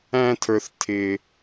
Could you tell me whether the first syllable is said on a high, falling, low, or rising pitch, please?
low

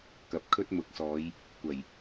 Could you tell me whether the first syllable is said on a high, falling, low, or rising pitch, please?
rising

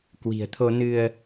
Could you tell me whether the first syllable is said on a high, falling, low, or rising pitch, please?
low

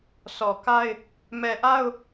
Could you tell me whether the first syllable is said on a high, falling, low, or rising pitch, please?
low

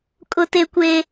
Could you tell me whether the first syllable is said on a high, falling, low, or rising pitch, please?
high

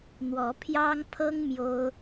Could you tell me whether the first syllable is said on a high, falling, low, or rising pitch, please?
rising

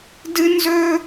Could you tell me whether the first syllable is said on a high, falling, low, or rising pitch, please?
high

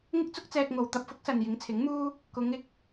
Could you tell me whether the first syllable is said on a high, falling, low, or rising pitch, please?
high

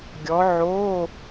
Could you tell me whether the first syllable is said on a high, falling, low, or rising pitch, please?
rising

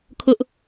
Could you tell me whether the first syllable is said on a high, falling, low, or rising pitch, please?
high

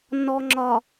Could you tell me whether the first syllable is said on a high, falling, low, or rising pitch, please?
low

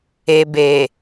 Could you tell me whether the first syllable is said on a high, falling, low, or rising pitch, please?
low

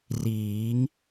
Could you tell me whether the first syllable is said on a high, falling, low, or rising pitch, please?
rising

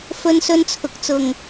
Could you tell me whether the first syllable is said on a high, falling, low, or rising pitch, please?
high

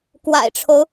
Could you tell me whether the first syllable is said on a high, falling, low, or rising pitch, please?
low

